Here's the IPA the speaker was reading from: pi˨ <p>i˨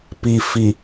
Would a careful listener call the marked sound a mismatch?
yes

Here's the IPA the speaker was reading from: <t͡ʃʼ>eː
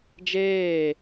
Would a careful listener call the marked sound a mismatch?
yes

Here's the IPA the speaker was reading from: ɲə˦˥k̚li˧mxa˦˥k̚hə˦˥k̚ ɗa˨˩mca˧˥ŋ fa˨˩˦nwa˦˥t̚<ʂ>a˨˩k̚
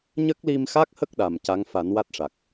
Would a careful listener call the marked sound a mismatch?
no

